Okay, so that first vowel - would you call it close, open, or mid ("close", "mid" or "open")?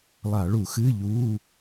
open